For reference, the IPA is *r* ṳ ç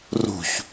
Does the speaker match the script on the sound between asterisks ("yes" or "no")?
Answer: yes